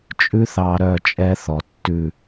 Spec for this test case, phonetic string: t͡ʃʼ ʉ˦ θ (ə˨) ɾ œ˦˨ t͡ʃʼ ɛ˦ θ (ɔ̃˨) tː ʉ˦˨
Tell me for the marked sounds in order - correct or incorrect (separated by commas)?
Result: incorrect, incorrect